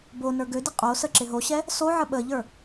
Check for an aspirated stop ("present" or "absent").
absent